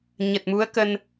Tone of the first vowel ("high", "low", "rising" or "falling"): low